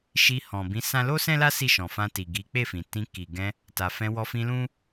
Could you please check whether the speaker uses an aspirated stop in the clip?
no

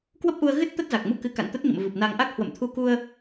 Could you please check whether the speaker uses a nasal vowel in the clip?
no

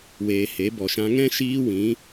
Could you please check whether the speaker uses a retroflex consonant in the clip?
no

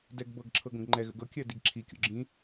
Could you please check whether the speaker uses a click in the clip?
yes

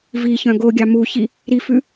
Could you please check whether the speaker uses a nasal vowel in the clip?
yes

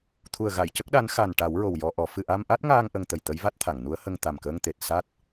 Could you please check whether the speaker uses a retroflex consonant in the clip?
yes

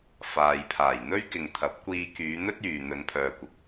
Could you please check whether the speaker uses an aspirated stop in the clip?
yes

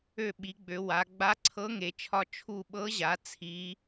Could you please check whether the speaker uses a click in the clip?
yes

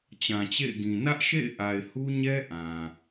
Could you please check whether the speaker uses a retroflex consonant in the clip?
no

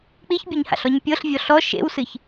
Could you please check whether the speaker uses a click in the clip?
no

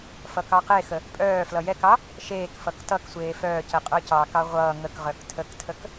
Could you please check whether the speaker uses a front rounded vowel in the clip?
yes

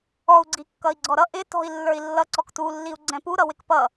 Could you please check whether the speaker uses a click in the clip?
yes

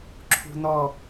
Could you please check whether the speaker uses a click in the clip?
yes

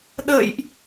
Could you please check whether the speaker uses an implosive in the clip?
yes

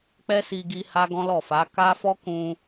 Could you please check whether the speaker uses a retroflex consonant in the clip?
no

